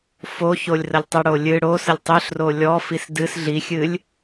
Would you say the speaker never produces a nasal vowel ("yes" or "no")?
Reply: yes